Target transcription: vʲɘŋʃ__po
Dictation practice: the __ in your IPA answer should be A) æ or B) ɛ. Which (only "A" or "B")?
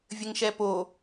B